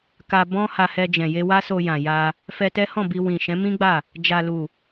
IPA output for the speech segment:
k a˧ b ɔ̃˦ h a˧ h ɛ˧ d͡ʒ ɛ̃˨ j e˧ w a˦ s o˧ j ã˨ j a˧ | f ɛ˧ t ɛ˦ h ɔ̃˦˨ b i˧ w ĩ˨ ʃ ɛ̃˨˦ m ĩ˦ ɡ͡b a˦˨ | d͡ʒ a˨ l u˨

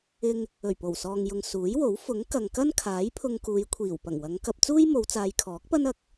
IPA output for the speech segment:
ɪ˧ ŋ | ɵ˨˩ ɥ p o˨˩ w s ɔː˨ ŋ j ʊ˨ ŋ s uː˨˥ j w o˨˥ w f ʊ˨˥ ŋ k ɐ˨ ŋ k ɐ˥ n kʰ aː˨˥ j pʰ ʊ˧ ŋ k uː˨˧ j kʷʰ iː˨˩ w p ɐ˨˩ ŋ w ɐ˨˧ ŋ k ɐ˧ p̚ t͡s uː˥ j m o˨˧ w t͡s aː˨˧ j kʰ ɔː˨˥ k̚ p ɐ˥ n ɐ˧ k̚

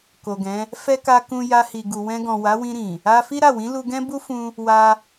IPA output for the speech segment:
k o˨ ɡ ɛ̃˨˦ | f ɛ˦ k a˧ k ũ˧ j a˧ h i˨ ɡ u˨ w ɛ̃˧ ɡ ɔ̃˨ w a˨˦ w ĩ˧ ɾ ĩ˨ | a˧ f i˦ ɾ a˦˨ w ĩ˨˦ l u˧ ɡ ɛ̃˦ b u˦ f ũ˧ | w a˧

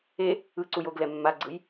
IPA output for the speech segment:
e | ɯ ǀ u j o ɡ l ɛ mː a ɡ͡ǀ ɯ j

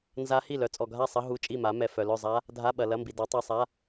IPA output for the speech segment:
n z a˦˥ h i˥˨ l œ˨˥ t͡sʼ ɔ˨ ɡʱ a˥˨ sˤ ɐ˦˥ ɦ u˧˥˧ t͡ʃʼ i˥˨ m a˨˥ m ɛ˨ f œ˨ l œ˥˨ zˤ a˦˥ | dʱ a˧˥˧ ɓ ɐ˨ l ɐ˧˥˧ m b i˨ d ɔ˨˥ tˤ ɛ˧˥˧ sˤ a˧˥˧

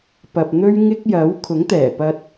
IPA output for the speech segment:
p ɐ˨ p̚ n̪ ɵ˥ ɥ ŋ ɪ˥ k̚ j ɐ˨˥ w kʰ ʊ˨˥ ŋ t̪ ɛː˨˩ p ɐ˧ t̚

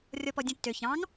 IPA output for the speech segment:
rʲ ɔ p ɔ dʲ ũ tː ø ç ɑ̃ ŋ

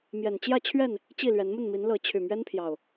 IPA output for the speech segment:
m j ɛ˨˩ n t͡ɕ j ä˥˨ t͡ɕʰ ɥ ɛ˥˨ n | t͡ɕ i˥˨ l ɥ ɛ˨˦ n m ə˥˨ n m i˨˦ n l ɤ˨˦ t͡ɕʰ y˨˩ m ɥ ɛ˦ n pʰ j ɑ˨˩ ʊ̯

